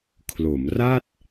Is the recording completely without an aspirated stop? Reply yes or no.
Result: no